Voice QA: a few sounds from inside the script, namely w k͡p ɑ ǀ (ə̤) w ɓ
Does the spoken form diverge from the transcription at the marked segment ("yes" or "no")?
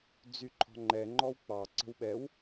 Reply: no